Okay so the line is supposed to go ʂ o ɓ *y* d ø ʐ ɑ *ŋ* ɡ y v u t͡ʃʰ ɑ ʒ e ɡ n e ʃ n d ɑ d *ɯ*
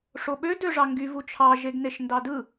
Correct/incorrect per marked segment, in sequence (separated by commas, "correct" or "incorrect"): incorrect, correct, correct